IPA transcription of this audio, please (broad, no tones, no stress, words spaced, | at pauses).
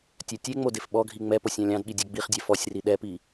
tʲœtʲeŋ͡mo defɓɔɡʱi ŋ͡mɛposʲ ɑ̃lʲɑ̃dɠi dʲɛɡ͡biχdʲɛ fɔsʲri ɗɛpi